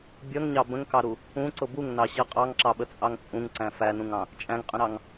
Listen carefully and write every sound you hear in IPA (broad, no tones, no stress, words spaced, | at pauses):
bʲʌŋɲɑ bə̃ŋkɑɾu | ũǀʊ buŋnɑɕʌ qʼɑŋǁɑɓət͡sʼɑŋ t͡sʼũŋǀæ̃ fænũŋɑ̃ | t͡ʃʼæ̃ŋqʼə̃ɾɑŋ